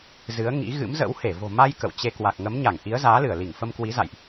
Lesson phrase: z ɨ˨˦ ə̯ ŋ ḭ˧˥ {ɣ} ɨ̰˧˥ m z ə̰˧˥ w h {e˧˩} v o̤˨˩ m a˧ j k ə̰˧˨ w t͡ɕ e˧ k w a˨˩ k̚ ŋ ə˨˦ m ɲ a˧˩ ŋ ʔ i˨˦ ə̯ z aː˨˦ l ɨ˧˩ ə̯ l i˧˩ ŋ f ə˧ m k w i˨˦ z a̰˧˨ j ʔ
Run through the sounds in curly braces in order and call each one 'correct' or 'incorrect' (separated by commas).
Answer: correct, correct